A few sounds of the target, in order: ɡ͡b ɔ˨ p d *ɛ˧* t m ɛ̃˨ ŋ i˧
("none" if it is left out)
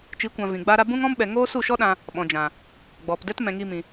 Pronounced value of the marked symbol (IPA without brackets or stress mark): ɛ˦